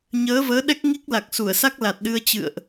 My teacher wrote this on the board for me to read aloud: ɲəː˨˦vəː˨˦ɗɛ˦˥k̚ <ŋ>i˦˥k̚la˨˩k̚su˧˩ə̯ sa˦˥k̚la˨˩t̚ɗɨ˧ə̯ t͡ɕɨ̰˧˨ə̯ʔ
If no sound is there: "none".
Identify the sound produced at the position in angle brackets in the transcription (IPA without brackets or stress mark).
ŋ